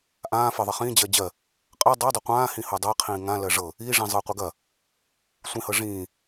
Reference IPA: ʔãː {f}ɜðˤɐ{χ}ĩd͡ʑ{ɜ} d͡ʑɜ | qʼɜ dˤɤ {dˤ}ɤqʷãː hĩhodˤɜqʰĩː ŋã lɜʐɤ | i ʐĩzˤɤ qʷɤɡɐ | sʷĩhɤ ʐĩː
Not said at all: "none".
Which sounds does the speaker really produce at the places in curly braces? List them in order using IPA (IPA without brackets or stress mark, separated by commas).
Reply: f, χ, ɜ, dˤ